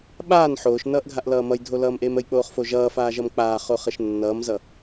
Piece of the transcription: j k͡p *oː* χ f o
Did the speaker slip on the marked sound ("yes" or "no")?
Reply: no